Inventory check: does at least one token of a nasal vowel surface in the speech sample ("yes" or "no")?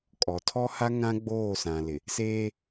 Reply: yes